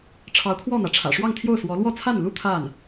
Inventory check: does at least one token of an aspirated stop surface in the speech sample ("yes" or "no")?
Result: yes